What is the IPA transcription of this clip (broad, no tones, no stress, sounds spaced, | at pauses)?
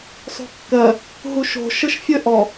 sˤ o̤ kː ɜ | ɦ u ʃ o̤ ʃ ə ʃ fʲ ə ʔ ɔ